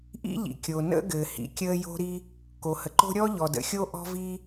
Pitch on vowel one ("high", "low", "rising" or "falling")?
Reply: high